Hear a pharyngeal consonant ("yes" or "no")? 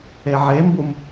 yes